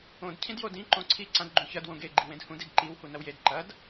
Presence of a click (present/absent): present